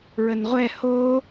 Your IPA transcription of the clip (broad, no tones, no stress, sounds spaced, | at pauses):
ɹ ə n ʁʷ ɛ h o